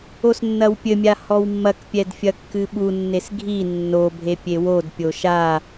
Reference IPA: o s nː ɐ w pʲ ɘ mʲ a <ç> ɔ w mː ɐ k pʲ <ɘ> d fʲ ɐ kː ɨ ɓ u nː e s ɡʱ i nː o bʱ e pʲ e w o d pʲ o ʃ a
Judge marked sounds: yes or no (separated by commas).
no, no